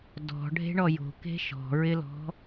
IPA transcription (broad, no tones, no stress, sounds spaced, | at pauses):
d ɔ̤ ɖʱ e̤ ɳ ɔ j o̤ k e̤ ʃ ɔ̤ ɹ ɪ l ɔ̤